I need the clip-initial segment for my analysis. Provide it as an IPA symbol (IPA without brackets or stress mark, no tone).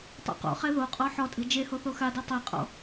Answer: tˤ